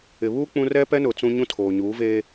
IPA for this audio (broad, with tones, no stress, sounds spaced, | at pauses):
ɪ˨ β uː˦ k͡p ũ˦ r ɛ˦ p ɛ˦ n ʊ˨ t͡s ũ˦ ɲ ũ˦ tʰ oː˨ ɲ uː˨˦ v eː˦